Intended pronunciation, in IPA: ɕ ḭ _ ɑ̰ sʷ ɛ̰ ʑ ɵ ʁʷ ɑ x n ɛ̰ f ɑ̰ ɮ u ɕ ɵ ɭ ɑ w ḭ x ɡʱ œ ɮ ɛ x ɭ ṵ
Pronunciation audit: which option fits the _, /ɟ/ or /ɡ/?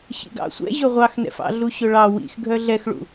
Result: ɡ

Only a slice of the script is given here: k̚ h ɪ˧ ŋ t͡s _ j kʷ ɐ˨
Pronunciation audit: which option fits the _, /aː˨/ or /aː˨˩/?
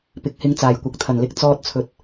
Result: aː˨˩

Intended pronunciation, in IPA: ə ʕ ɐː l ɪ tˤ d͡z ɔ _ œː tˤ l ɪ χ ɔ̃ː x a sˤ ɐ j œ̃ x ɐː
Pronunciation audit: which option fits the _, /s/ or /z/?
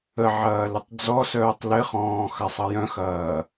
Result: s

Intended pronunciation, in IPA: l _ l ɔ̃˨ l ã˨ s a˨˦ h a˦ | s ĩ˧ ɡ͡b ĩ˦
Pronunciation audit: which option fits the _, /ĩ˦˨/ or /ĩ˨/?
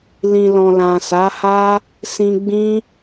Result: ĩ˨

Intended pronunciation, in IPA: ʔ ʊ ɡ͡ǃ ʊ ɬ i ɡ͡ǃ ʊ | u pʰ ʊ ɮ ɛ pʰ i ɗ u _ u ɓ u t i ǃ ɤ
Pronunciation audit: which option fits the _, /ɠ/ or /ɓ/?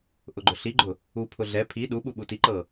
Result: ɓ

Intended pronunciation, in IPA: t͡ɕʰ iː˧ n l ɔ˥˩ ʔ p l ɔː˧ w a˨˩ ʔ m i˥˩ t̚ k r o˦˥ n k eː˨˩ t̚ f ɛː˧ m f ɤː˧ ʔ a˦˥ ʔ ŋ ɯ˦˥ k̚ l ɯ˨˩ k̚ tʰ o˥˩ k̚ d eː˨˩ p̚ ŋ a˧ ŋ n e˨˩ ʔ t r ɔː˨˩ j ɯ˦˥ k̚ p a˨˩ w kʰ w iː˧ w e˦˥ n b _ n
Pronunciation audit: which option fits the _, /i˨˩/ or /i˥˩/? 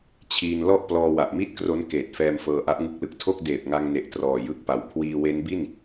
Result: i˥˩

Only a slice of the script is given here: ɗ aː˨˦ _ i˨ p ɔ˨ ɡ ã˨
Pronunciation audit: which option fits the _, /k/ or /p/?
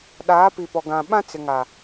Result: p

